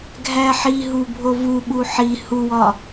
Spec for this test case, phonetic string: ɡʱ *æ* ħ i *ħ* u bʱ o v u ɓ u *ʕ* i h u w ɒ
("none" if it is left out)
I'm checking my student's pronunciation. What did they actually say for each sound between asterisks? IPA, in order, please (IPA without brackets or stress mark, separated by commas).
æ, ɦ, ħ